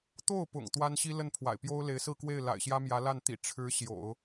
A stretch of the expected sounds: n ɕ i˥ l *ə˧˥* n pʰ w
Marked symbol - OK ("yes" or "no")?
no